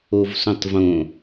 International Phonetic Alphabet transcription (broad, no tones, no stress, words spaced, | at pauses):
ovsõtˤvõ